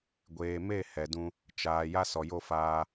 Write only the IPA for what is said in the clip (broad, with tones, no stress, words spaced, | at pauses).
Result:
ɡʷeː˨me˦˨ hɛ˨dũ˧ | t͡ʃaː˨ ja˦sɔ˨jo˦˨ faː˧